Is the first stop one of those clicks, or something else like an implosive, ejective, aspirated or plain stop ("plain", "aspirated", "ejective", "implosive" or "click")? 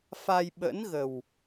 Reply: implosive